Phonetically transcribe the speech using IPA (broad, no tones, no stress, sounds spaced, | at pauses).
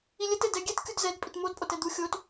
i lʲ ɘ t ɘ d ɛ ɡʲ ɛ t kʲ u d z ɛ d pʼ i t m o d pʼ o t ɛ d̪ u xʲ o t